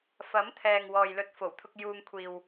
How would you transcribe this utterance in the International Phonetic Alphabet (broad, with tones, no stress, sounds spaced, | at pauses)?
f ɐ˨˥ m t̪ʰ ɛː˨ ŋ w ɔː˨ j l ɵ˨˥ t̚ f o˨˩ w t̪ʰ ʊ˧ k̚ j uː˧ ŋ kʷʰ iː˨ w